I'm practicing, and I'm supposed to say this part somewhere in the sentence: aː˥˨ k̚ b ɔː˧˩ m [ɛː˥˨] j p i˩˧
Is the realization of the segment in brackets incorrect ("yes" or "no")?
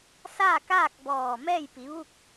no